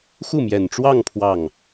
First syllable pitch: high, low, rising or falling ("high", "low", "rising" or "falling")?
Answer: falling